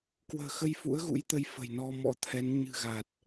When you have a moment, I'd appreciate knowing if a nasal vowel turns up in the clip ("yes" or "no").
no